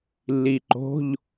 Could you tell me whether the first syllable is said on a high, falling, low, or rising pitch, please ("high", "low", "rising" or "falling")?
low